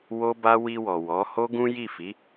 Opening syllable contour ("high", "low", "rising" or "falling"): high